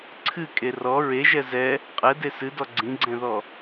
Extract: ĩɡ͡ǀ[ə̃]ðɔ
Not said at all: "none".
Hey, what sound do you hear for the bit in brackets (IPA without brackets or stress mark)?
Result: ɛ̃